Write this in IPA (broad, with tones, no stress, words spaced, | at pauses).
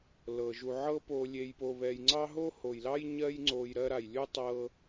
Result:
lɤ˩ʒu˨ ʕɤ˦po˨lʲe˨jpo˨ βɛ˨jŋ͡ǀɑ˥ ɦo˥ho˩jlɑ˥j ɲɜ˦jŋ͡ǀo˨j ɾɜ˦ɾa˩jlʲu˥ tˤɤ˦